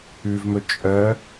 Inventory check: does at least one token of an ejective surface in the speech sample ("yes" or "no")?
yes